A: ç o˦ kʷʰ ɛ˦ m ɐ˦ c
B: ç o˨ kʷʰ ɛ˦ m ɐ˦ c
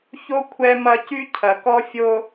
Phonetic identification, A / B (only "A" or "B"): A